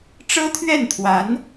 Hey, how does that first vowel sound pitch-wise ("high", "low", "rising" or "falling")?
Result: high